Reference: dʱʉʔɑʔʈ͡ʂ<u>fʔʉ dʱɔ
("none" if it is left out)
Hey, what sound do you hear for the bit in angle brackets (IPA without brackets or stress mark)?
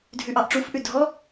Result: u